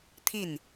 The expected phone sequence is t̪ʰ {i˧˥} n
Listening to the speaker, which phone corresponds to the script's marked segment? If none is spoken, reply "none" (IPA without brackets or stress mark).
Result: i˥˩